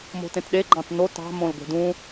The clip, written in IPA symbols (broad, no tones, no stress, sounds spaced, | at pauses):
m o̤ t ẽ t ɗ e ɡ͡ǃ ɑ̃ t n o t ɑ̤ m õ l ɡʷ e̤ d ũ